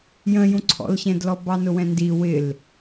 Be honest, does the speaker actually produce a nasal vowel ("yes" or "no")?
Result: yes